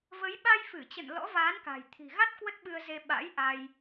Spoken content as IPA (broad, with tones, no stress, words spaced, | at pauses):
və˨˦j ɓa˧jfɨ˧˩t͡ɕə̰˧˨n lɔ̰˧˥vaː˨˦nka̤˨˩j t̪ʰi̤˨˩ɣa˦˥t̚ kwə˦˥t̚ɓɨ˧ə̯ze˧ ɓa̰˧˥j ʔa˧j